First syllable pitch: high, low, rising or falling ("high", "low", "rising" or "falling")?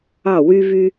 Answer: falling